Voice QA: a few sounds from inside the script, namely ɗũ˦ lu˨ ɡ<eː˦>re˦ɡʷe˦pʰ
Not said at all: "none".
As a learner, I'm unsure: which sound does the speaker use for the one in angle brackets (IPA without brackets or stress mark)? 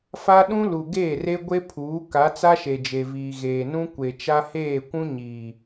eː˦˨